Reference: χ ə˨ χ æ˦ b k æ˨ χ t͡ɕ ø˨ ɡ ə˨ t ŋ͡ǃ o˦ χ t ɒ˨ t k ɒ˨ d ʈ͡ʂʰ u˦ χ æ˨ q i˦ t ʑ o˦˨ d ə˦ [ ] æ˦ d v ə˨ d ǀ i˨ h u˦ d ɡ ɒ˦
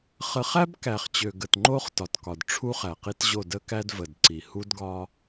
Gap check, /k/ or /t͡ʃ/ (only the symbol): k